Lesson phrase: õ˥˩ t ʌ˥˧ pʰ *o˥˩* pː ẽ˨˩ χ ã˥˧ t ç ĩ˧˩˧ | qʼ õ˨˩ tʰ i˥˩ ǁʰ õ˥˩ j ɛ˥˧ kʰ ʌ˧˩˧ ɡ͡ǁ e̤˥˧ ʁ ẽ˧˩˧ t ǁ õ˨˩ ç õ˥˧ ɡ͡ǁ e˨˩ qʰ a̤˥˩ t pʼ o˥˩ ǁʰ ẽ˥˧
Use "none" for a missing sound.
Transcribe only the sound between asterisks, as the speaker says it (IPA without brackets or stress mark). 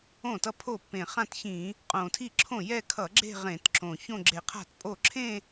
o˥˩